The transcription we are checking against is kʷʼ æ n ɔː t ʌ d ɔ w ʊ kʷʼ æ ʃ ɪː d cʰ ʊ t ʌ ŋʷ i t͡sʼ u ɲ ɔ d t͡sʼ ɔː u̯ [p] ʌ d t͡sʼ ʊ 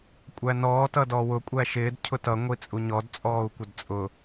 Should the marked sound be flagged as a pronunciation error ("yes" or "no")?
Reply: yes